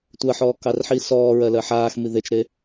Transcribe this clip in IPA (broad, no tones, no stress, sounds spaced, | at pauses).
tʷ ɜ ħ ɔː k ɑ r ħ iː s ɔː ɹ ɜ l ɜ ħ aː x m i ð e t͡ʃ ɾ e